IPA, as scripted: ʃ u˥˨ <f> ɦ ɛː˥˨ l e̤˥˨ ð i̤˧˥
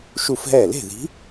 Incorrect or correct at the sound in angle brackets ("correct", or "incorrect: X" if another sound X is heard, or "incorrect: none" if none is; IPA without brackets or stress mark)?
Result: correct